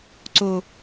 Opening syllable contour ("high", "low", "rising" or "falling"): low